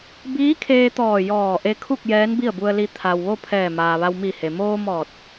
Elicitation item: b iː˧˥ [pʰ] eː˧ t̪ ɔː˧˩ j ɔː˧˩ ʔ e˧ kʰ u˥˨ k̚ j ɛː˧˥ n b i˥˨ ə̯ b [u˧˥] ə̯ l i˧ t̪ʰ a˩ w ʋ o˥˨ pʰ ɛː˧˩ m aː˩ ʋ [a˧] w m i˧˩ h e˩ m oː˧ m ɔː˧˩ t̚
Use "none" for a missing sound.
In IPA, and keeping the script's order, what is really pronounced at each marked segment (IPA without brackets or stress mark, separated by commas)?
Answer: kʰ, u˧, a˧